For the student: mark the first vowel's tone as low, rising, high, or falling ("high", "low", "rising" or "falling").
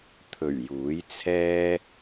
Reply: low